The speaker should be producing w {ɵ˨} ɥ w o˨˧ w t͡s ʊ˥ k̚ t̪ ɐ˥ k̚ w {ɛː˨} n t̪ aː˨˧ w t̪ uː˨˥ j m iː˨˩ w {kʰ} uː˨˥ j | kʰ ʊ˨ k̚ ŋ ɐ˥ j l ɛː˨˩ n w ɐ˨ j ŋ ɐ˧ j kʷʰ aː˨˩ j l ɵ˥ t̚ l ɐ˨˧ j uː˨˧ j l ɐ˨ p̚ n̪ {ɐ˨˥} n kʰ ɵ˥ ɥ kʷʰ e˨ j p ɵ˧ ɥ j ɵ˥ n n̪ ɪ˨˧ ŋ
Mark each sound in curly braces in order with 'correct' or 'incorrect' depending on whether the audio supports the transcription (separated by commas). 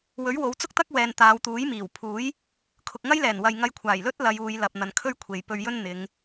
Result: incorrect, correct, incorrect, incorrect